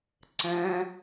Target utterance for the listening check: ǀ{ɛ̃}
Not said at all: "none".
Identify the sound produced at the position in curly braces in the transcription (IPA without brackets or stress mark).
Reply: ɛ̃